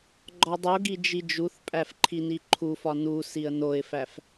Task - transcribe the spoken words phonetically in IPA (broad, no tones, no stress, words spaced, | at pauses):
ɡ͡ǃɒdˤoɡi d͡ʒid͡ʒuθpʼæf ǃʰiniǃʰufɒ nusiə̯ noɪ̯fæf